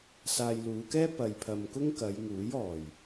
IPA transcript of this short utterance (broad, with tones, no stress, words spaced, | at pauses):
saː˧jluː˨˧kɛː˥ pɐ˨j pʰɐ˨m kʊ˥ŋkɐ˨˧jŋuː˨˥j ɔː˨˩j